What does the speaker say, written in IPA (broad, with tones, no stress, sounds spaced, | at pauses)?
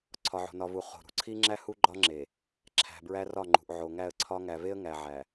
ǀʰ ɒ˨ ʕ o̤˨ n ɒ˨ v u˨ χ o̤˨ ɾ ṳ˨ ǀʰ i˦ ŋ͡ǁ æ˦ h u˦ ɡ͡ǃ ɒ˦ ŋ͡ǁ e˨ | ǁʰ æ̤˨ b ɹ æ˦ r ɒ˦˨ ŋ͡ǃ ṳ˨ ʔ ʕ o˨ ŋ æ˦˨ ə̯ ǀʰ ɒ˦ ŋ æ˨ v e˦ ə̯ ŋ æ˨ ʕ æ˨